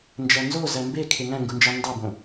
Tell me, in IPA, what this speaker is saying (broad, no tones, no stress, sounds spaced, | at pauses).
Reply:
n d͡ʒ æ n z o z æ m b e kʰ e ŋ æ̃ ŋ ɡ u n d͡ʒ ɑ n d ɑ b õ